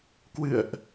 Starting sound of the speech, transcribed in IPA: k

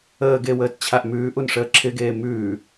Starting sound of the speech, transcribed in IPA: əː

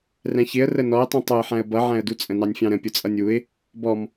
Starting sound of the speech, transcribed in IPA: r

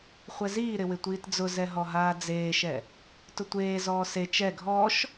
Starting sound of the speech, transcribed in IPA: χʷ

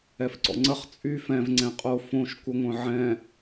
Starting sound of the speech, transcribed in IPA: ɛ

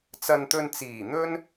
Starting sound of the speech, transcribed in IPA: t͡s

